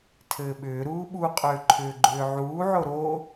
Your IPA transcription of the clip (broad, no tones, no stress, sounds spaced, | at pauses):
tʰ ɘː ɓ ʏː ɾ uː ɓ u qʼ ʏː ǃʰ ʏː ɡ͡ǃ ʏː ʕ uː ʕ o ɾ o